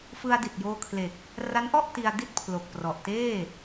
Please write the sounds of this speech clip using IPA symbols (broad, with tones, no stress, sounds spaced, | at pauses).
f ɯ˧ a̯ d i˨˩ t̚ j oː˧ kʰ l e˨˩ k̚ | r a˦˥ n ʔ ɔ˥˩ ʔ t i˧ a̯ d i˥˩ t̚ pʰ l o˨˩ k̚ p r ɔ˨˩ ʔ t eː˥˩